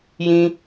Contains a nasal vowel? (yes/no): yes